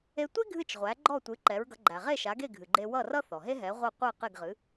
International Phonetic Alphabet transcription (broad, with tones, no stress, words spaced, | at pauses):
e˧tʷe˥ ɡʱɨ˥˩t͡ʃ ʁʷæ˩˥ɡ͡ǃɔ˥˩tʷɨ˩˥ ǃɛ˩˥ɹɡʌ˩˥ ɡ͡ǃæ˩ʁe˥˩ʃa˩˥ɡe˥˩ ɡʱɨ˩ɡ͡ǃe˧ wʌ˥˩rʌ˥θɔ˩ɦe˥ ɦɛ˩˥ʁʷæ˥˩ qʷe˥˩qe˥˩ɡ ʁɨ˩˥